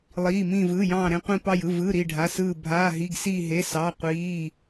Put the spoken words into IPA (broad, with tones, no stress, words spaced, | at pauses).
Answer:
lˠiː˩˧˩mĩ˧˩vɯː˩˧˩jɑ̃ː˧˩ ɾẽ˧˩qʷĩ˧˩ pɑ˧˩jɯ˩˧˩ vɯ˩˧˩ ɾi˧˩ɖʱa˩˧˩sɯː˧˩ bʱaː˩˧˩ɦi˩˧˩ɡsiː˧˩ ɦe˩˧˩sɑ˩˧˩qʷiː˩˧˩